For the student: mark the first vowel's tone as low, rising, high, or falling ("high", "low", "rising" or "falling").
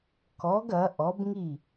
rising